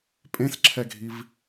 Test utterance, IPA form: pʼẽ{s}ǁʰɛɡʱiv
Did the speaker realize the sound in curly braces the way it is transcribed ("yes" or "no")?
yes